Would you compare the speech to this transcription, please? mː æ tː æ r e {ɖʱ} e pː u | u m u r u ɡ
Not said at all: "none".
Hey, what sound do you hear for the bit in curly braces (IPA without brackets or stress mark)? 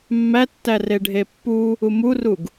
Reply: ɖʱ